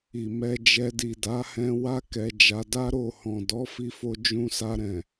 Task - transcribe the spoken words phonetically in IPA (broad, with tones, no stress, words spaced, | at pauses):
i˨ mɛ˧d͡ʒɛ˧ di˨da˨˦hɛ̃˧wa˦ kɛ˧d͡ʒa˧ da˦ɾo˦˨hɔ̃˨ dɔ˨˦fi˧fo˧ d͡ʒũ˧sa˧ɾɛ̃˨